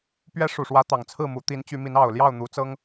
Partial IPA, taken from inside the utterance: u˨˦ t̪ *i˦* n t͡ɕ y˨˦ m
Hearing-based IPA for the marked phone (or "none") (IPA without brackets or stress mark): i˨˦